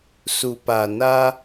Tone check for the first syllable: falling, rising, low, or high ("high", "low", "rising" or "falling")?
low